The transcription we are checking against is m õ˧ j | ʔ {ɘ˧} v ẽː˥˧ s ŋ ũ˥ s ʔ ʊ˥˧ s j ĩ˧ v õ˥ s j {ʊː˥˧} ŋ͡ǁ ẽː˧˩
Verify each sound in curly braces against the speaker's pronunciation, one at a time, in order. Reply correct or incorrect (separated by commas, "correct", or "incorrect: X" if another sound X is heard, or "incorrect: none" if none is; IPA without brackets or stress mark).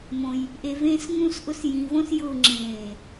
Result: incorrect: e˧, correct